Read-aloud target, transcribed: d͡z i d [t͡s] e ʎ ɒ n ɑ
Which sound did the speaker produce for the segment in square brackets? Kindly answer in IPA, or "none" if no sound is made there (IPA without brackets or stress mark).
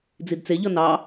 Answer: t͡s